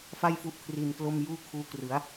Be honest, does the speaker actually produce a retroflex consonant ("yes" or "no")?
no